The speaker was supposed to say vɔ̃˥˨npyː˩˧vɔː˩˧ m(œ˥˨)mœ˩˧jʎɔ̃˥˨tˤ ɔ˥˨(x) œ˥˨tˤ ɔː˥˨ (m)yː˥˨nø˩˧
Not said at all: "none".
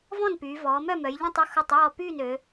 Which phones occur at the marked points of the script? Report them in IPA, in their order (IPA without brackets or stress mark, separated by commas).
œ˥˨, x, p